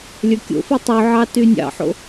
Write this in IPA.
lʲ ə˞ kʲ o̰ f i tˤ y ʕ ɑ t y nʲ ɑ̰ ħ o̰

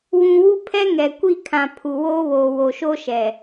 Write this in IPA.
w ũ˨ w u˦ pʰ ɛ˦ ŋ ɛ˨ kʷ i˦˨ kʰ ã˨ pʰ u˨ w oː˦ β oː˨ w o˨ ʃ o˦ ʃ ɛ˨

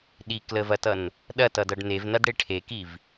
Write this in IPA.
ɗ i k l ə v ɐ t ʌ n | ɗ ɐ t ʌ d ʌ ɖ n e v n ɐ d ɽ e ʈʰ e k i v

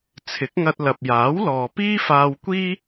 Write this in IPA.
t͡sʰ ɪ˨˥ k̚ ŋ ɐ˧ t̚ l ɐ˨ p̚ j aː˨˥ w l ɔː˨ p iː˥ f aː˧ w kʷ iː˥

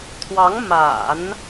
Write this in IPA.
t̪ʰ w ɑ˧˥ ŋ m a̰˨˩˦ n

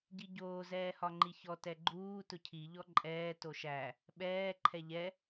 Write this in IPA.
ɟ i ɟ oː z ɛː h ɒ ŋ͡ǃ i ç ɔ t ɛ ɡ͡ǃ uː t ʊ cʰ i ʎ ɔ ǃʼ ɛː t o ʃ æ | ɓ ɛː ǃʰ ɛ ʎ ɛ

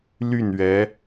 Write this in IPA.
l y˥˩ n ɥ ɛ˧˥

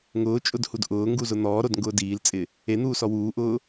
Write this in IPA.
ŋ ʊː t͡ʃʼ ʊ d h u d ʔ ʊː ŋ ɡ u z ʊ n̪ ɔː ɾ o d ŋ ɡ ʊː d iː l t͡sʼ ɪ | e n̪ uː s ɔ w uː ʔ ʊː

